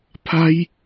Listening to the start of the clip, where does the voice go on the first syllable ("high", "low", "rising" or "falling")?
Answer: high